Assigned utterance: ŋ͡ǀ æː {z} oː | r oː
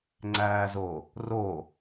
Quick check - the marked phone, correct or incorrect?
correct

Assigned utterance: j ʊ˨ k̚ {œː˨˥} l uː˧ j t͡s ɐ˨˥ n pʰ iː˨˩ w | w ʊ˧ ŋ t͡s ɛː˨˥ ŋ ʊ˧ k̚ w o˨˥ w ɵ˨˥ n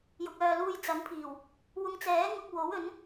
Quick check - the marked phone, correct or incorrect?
incorrect: œː˨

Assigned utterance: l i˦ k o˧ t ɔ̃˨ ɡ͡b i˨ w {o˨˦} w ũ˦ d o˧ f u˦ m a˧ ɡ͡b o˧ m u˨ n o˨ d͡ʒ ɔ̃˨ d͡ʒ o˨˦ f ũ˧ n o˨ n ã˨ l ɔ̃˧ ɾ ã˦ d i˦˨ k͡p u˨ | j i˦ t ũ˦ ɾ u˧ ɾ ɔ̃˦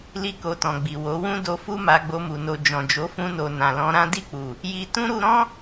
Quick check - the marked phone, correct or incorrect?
correct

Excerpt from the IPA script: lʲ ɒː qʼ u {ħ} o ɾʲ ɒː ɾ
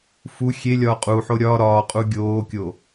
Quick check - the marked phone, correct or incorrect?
correct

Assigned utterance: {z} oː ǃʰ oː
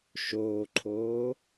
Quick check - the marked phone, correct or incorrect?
incorrect: ʃ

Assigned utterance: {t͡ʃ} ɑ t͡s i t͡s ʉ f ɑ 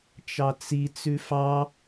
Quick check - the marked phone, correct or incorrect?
correct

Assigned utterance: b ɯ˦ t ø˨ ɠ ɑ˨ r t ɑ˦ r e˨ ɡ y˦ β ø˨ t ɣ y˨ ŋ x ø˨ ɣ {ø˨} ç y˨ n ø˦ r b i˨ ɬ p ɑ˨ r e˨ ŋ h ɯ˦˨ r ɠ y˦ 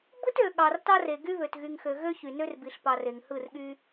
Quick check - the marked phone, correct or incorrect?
incorrect: ø˦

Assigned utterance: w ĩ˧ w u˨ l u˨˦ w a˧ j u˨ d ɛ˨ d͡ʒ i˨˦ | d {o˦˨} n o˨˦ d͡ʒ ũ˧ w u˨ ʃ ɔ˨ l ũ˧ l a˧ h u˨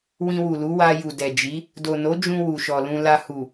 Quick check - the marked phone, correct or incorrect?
incorrect: o˨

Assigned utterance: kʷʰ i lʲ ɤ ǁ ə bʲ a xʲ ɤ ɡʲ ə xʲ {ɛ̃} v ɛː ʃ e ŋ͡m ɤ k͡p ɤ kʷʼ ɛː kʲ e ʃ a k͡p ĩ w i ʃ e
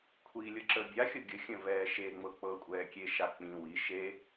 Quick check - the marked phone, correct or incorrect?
incorrect: ə̃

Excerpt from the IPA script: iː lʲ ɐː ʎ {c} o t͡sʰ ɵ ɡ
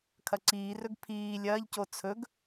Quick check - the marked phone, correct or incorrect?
correct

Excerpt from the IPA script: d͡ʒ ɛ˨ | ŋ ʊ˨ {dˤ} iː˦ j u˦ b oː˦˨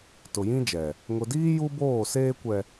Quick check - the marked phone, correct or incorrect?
incorrect: d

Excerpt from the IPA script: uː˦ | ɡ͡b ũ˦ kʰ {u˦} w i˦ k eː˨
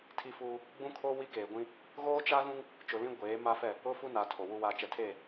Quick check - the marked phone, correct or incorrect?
incorrect: o˦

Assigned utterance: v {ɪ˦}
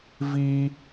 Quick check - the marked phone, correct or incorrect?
incorrect: i˦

